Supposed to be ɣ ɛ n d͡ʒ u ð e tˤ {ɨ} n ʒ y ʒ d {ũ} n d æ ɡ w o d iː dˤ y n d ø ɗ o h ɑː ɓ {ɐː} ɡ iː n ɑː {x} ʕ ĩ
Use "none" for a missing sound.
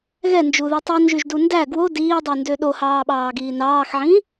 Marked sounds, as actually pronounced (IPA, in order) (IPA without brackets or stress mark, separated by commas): i, u, ɑː, x